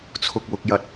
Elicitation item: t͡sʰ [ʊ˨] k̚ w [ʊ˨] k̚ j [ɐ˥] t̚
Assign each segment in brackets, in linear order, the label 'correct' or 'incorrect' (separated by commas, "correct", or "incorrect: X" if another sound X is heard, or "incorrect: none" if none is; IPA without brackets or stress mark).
correct, correct, incorrect: ɐ˨˥